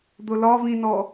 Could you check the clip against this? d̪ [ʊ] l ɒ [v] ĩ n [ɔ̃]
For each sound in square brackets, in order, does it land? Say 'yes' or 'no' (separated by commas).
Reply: yes, yes, no